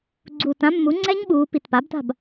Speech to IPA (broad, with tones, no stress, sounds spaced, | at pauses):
ɡ͡ǀ uː˨˩ t ã˦˥ mː u˩˥ ŋ͡ǀ ɛ˦˥ ɲ ɓ uː˩˧ p i˨˩ t p a˩˥ b t a̤˥˩ b